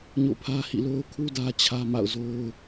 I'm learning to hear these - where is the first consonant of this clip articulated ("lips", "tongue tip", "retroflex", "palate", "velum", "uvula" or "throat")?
palate